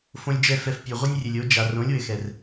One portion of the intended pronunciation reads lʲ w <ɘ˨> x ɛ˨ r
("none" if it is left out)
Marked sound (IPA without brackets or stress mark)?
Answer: ɘ˨